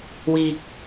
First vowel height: high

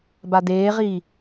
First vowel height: low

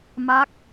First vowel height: low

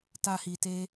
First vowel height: low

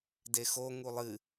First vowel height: mid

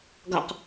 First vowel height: low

